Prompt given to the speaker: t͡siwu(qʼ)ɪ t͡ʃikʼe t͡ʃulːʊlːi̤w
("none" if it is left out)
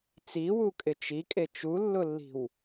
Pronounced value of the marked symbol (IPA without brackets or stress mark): kʼ